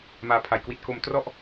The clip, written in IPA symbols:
maː˨˩pʰa˩˦jkwi˨˩t̚ ko˩˦m trɔ˦˥ʔ

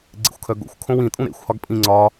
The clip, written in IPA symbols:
ɡ͡ǀḛxʷkʰœɡo̰xʷ kʰõwĩ tʼũɾḛxʷ hɒɡpʼĩ ŋ͡ǀɒ

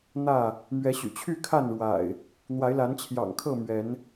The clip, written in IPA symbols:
n̪ä˥˨ | mɥɛ˨˦ɕy̰˨˩t͡ɕʰy˥˨ kʰa˥˨nɻwa̰˨˩ɪ̯ | n̪wa˨˦ɪ̯la˨˦nt͡ɕʰjɑ̰˨˩ŋ kʰɤ˥˨mɥɛ˨˦n

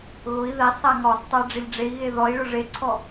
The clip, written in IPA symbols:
ɣʊi̯ ðɛsˤ aŋɔsˤtˤa ɖ͡ʐɪʎɖ͡ʐei̯ɣe ðɔi̯ɭʊ ʐeǀʰɔ

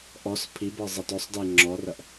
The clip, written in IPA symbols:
ʔɔs pʰibɤ zˤatɔsˤde ŋ͡ǁɔrɐʔ

